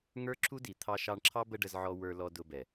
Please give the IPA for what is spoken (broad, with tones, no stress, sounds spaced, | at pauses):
ŋ ə˞˦ ǁʰ u˦ d i˨ t̪ʰ ɑ˧ ʃ ɑ˧ ɳ ǁʰ ɑ˦ b ə˦ ɖ ə˧ z ʕ ɔ˧ w ə˞˧ l ɔ˧ d ʊ˧ b ɛ˨